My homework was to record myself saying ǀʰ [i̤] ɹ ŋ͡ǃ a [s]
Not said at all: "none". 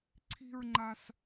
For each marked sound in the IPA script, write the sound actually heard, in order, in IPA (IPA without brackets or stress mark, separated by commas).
i̤, s